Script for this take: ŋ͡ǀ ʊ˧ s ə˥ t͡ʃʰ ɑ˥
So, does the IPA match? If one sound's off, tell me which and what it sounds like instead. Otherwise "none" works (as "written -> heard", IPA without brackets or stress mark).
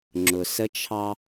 ŋ͡ǀ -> ŋ͡ǁ